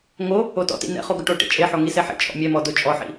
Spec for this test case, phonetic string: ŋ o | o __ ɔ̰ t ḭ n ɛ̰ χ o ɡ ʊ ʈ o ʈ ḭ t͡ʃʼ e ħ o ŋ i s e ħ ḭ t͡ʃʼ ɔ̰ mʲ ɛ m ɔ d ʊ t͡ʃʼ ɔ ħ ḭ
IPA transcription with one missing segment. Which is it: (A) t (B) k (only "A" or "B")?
A